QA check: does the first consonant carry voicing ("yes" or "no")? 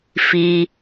no